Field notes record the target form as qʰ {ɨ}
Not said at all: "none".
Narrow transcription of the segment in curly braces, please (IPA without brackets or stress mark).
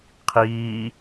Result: i